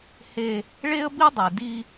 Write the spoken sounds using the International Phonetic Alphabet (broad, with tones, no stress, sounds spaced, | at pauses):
h e˦ | ɭ e˦ ə̯ b i˦ dˤ e˨ d i˦